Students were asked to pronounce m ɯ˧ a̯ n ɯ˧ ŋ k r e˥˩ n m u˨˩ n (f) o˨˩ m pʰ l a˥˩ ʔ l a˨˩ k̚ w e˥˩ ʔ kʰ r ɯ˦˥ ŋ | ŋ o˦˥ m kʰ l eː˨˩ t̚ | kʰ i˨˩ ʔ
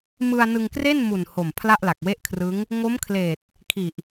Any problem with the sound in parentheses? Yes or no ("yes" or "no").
yes